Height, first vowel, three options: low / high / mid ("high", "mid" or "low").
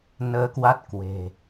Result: mid